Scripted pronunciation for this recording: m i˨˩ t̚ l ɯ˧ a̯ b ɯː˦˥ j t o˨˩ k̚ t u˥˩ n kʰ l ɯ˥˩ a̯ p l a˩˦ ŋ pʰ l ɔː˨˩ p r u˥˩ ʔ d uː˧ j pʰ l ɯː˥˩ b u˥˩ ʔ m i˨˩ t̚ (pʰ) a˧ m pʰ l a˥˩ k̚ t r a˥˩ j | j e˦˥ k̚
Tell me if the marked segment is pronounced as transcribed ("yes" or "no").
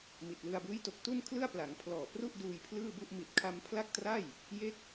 no